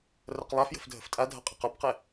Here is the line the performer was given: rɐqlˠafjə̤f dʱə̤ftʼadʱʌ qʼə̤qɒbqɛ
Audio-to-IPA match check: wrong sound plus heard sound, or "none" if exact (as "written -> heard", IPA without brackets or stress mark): none